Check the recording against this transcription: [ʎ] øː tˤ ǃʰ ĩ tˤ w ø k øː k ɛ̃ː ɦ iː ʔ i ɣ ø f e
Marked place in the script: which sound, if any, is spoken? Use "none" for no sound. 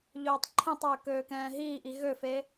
ʎ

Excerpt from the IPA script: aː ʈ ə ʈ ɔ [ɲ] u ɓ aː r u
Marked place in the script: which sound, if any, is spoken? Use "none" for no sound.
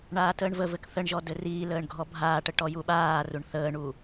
j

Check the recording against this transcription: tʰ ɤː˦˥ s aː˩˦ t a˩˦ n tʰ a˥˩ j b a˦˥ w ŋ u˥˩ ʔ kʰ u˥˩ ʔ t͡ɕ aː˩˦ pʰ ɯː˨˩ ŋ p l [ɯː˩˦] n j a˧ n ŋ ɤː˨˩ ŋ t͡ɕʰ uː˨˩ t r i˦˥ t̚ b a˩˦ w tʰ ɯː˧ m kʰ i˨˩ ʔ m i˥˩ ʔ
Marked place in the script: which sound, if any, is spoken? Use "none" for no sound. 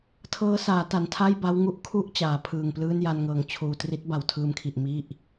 ɯː˥˩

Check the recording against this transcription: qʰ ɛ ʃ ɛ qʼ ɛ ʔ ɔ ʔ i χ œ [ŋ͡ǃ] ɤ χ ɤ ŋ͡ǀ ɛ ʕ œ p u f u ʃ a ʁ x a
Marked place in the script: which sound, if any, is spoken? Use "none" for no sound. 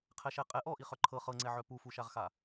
ǃʰ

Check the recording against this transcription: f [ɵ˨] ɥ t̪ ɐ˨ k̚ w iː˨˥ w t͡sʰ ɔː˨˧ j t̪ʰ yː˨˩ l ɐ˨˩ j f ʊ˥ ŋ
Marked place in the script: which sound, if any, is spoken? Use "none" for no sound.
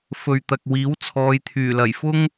ɵ˨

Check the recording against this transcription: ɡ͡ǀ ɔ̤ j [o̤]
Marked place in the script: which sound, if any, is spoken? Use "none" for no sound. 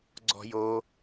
o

